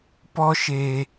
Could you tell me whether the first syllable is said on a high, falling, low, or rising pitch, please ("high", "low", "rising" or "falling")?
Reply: high